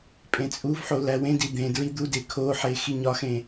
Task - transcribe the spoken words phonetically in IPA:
pʼẽt͡sʼuvħo læwẽdi d̪ẽ dɹid̪ude kʰoħe xiɲɒxẽ

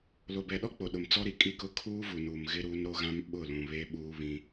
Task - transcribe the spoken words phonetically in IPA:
lo˨bɛ˨ɗɔ˦ k͡po˨ɗʊ˨m t͡sɔ˦ɾi˨ kʼi˦kʊ˦ kʰuː˦vu˨nuː˨m ɣɪ˦ɾuː˦n ɾo˦ɣã˦m ɓʊ˦˨ lũ˨βe˦ɓuː˦ βĩ˦

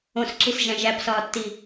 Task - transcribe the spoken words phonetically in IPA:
õsǁisʒæ̃ ʒæpsɒːtːi

